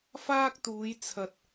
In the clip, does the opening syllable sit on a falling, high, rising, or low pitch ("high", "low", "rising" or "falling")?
high